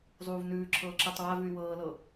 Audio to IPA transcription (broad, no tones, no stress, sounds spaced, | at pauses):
zˤ uː v n ʉː ǁʰ ɤː ǁ əː tˤ w a v ʉ y̯ w ɤː l ɤ